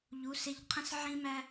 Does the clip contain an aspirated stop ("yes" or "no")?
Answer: yes